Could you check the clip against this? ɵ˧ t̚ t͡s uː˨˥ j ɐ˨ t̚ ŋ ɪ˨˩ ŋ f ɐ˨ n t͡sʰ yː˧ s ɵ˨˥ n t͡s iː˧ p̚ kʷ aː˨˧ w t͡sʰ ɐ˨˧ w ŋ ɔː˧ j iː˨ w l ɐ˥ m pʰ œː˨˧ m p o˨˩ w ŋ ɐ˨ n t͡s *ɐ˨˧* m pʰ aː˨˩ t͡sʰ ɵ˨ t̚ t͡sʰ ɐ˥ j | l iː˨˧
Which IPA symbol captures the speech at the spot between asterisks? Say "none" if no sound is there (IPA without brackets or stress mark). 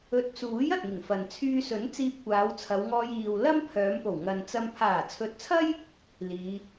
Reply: ɐ˧